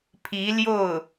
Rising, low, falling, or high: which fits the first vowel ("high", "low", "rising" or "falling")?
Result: rising